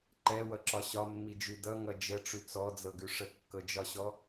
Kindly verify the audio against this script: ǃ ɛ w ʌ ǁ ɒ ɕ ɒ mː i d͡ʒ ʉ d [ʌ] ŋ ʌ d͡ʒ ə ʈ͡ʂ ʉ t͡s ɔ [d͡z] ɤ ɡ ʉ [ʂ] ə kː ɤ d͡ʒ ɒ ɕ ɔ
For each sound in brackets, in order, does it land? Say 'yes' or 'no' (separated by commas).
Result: yes, yes, yes